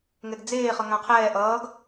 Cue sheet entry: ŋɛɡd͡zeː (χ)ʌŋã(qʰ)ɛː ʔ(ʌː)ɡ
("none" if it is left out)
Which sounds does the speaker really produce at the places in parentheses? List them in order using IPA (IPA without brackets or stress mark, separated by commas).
χ, qʰ, ʌː